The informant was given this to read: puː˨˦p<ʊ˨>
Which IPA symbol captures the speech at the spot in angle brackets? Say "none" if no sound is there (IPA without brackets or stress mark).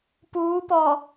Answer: ɔ˨